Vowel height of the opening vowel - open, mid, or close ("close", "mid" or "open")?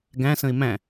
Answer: open